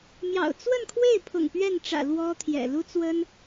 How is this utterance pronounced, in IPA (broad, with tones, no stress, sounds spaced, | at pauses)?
m j ɑ̰˨˩ ʊ̯ t͡s w ə˥˧ n kʰ w e˥˩ ɪ̯ pʰ ʊ̰˨˩ ŋ p ɥ ɛ˥˩ n ʈ͡ʂ ä̰˨˩ l w ɔ˥ t̪ʰ j ɛ̰˨˩ l u˥ t͡s w ə˥ n